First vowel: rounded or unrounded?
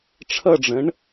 unrounded